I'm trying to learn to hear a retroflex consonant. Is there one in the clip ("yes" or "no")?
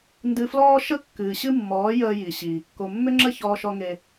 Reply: no